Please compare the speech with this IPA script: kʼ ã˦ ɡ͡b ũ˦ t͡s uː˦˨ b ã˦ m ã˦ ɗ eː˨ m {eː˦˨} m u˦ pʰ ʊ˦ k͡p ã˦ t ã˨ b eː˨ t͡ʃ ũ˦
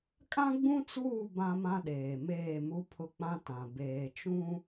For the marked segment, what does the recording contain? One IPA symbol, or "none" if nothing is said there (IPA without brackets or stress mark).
eː˦˨